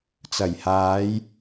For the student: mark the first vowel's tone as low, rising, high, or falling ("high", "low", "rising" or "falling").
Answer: low